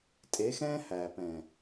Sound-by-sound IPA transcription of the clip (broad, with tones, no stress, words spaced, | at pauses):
tʼe˨˦xɛ̃ː˦ hæː˨pɛ̃˨